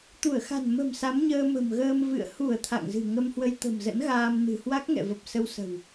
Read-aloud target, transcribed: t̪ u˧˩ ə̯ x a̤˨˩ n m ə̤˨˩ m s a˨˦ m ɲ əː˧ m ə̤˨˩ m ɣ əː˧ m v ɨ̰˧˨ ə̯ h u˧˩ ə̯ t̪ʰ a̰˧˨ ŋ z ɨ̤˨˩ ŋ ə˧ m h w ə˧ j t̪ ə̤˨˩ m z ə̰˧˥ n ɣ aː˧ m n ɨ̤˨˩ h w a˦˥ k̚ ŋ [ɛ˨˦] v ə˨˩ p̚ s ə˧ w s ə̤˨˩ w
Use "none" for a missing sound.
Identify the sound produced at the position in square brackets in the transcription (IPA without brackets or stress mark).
ɛ̰˧˨